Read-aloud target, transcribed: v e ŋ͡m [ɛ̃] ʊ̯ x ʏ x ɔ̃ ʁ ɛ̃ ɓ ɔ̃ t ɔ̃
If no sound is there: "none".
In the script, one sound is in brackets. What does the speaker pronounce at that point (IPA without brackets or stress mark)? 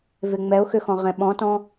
ɛ